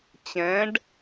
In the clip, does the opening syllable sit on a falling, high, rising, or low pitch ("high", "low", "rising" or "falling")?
rising